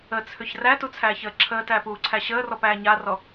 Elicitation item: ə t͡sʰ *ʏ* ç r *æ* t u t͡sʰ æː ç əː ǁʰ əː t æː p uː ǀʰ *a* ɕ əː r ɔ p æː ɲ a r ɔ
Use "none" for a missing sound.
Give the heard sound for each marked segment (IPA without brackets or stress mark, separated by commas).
ʏ, æ, æ